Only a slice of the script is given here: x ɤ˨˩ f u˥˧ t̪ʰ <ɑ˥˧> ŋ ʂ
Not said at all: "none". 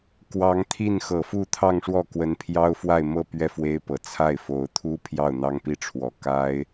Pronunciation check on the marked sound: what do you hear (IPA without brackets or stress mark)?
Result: ɑ˥˧